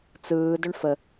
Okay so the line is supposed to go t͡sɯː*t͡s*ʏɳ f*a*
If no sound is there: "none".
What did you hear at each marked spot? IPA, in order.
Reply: d, ə

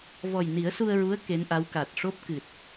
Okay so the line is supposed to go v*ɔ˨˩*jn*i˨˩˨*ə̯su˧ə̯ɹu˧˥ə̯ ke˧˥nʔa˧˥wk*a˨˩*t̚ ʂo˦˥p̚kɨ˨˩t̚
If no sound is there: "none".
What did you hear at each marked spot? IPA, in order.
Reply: ɔ˨˩, i˨˩˦, a˨˩

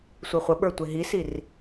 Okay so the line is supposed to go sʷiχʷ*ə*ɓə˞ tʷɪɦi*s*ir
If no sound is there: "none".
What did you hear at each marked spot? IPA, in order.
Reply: ə, s

